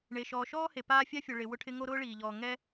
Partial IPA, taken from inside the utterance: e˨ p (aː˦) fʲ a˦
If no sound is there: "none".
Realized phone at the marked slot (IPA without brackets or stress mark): aː˦